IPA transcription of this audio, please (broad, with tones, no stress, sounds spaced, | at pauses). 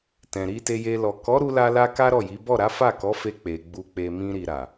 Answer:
t ɛ̃˨ ɾ i˧ t e˧ j e˧ l ɔ˨ k ɔ˨˦ ɾ u˧ l a˧ l a˧ k a˦ ɾ ɔ˦˨ j i˨˦ b ɔ˦˨ ɾ a˨˦ f a˦˨ k ɔ˨˦ f e˧ k͡p e˨ ɡ͡b u˧ k͡p e˧ m ĩ˧ ɾ i˨ ɾ a˨